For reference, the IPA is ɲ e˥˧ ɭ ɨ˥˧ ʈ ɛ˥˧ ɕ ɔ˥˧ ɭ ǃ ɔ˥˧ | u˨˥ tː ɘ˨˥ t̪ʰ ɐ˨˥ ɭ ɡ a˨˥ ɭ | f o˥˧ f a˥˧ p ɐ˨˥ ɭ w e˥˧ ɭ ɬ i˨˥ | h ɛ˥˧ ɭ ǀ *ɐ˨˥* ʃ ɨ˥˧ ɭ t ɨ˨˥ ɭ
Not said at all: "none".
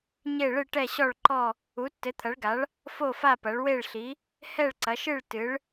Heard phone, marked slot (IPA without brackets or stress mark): ɐ˨˥